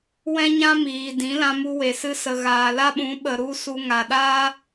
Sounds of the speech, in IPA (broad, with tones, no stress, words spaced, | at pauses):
wɛ̃˦ɲã˦ miː˨ dĩ˨˦lã˧mu˧ we˨ sɨ˧sə˨ ɣaː˨la˦ɓũ˨˦ɓə˨ ɾu˦ su˧ŋa˨ɗaː˦